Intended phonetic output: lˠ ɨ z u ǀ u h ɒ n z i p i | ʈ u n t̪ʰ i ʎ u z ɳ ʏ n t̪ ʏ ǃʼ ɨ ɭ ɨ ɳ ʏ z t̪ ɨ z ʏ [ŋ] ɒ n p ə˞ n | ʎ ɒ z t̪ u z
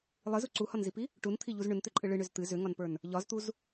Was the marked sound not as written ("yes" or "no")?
no